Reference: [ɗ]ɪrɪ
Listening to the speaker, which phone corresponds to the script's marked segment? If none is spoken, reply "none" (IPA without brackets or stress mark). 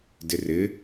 d